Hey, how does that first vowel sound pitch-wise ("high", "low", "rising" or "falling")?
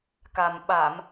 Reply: low